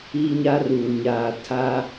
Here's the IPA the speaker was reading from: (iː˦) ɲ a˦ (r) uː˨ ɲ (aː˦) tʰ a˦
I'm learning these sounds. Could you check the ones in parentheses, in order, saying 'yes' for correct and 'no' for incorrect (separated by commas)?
yes, yes, no